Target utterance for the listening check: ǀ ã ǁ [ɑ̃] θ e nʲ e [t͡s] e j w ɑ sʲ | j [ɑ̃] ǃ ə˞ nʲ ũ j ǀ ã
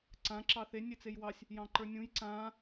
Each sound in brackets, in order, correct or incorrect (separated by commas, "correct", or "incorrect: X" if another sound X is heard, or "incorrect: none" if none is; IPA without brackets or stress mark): incorrect: ɑ, correct, correct